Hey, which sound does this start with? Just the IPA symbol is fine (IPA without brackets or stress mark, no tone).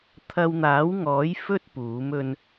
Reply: t̪ʰ